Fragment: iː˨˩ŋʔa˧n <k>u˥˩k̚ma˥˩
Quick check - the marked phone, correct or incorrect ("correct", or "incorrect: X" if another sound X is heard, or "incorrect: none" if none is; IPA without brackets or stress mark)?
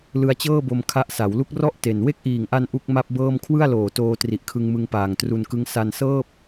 incorrect: ʔ